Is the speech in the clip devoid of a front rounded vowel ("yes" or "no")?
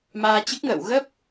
yes